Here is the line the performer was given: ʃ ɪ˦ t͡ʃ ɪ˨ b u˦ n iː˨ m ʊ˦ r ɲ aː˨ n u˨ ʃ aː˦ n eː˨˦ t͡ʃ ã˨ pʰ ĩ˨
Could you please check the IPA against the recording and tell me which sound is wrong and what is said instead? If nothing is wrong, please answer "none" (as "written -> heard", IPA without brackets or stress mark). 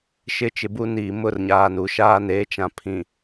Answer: none